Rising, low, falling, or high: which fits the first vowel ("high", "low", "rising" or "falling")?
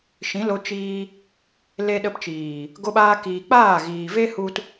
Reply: rising